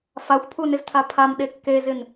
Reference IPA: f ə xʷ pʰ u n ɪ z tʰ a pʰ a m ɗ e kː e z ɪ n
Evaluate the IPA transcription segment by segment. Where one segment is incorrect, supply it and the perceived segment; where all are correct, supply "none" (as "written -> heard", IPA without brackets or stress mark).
ə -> a